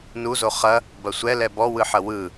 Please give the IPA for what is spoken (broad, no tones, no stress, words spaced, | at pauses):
nuzo χɐ | bɐsʷɛ lɛbɔwɯħɐ wɯ